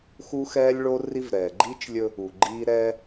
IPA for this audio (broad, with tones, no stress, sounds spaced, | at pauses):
x u˦ x ɛː˦ lʲ ɭ o˦ r i˦ v ɾ ɛː˨ ɡ͡ǃ iː˦ t͡ʃ lʲ ɵ˦ | u˨ ɡ͡ǃ iː˦ ɾ ɛː˦